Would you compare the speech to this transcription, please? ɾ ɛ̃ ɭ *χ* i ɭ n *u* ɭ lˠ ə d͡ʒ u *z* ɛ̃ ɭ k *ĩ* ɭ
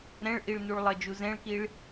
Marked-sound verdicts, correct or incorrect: incorrect, correct, correct, incorrect

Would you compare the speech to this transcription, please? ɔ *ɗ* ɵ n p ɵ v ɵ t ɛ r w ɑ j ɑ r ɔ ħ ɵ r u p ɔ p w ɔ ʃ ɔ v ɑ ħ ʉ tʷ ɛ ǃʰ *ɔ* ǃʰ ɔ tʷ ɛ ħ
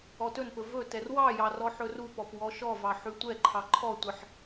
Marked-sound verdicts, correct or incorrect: incorrect, incorrect

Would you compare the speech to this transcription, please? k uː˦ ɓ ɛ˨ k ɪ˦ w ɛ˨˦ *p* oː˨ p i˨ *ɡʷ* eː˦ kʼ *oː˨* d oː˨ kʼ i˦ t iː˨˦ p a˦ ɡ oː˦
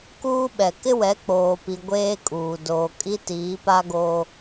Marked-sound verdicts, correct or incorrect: incorrect, correct, incorrect

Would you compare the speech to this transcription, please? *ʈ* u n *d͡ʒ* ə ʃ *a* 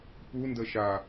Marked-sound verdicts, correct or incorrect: incorrect, incorrect, correct

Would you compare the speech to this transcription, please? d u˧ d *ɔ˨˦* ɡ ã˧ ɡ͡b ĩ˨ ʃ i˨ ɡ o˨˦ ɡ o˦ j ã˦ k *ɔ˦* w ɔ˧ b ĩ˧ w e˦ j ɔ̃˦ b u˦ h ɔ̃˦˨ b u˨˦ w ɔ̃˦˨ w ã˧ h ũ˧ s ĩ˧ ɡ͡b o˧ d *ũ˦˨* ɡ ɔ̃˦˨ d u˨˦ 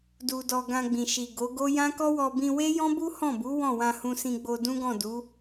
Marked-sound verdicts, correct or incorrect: incorrect, correct, incorrect

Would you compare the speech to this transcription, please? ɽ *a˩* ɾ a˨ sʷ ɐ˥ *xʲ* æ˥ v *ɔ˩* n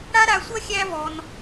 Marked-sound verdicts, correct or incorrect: incorrect, correct, correct

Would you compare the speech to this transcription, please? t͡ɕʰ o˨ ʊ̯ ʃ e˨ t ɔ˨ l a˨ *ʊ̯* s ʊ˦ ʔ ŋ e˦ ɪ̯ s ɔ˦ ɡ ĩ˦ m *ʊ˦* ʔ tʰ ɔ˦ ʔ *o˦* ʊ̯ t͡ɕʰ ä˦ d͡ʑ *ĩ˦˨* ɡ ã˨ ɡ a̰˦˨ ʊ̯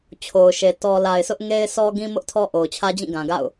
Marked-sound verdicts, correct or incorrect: incorrect, correct, incorrect, correct

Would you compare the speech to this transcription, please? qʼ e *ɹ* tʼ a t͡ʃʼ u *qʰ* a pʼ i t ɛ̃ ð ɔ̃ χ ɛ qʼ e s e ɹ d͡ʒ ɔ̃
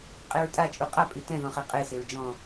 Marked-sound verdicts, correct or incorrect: correct, incorrect

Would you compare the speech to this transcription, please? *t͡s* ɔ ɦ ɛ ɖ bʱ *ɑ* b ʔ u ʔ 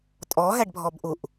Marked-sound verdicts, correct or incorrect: incorrect, incorrect

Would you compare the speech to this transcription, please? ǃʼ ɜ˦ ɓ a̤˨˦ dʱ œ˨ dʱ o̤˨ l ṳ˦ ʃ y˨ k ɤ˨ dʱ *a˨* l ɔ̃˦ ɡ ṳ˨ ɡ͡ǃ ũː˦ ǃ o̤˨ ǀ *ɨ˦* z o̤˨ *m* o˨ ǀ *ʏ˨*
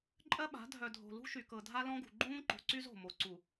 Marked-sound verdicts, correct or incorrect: incorrect, incorrect, correct, incorrect

